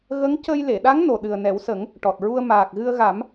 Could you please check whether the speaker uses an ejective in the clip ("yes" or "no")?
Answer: no